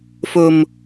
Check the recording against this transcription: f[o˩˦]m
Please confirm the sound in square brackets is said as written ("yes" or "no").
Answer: no